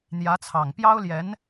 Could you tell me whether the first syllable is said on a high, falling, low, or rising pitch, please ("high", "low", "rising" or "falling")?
rising